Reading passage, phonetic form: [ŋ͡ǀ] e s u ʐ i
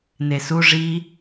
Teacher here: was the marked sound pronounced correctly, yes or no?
no